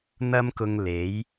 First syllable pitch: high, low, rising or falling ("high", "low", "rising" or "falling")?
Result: high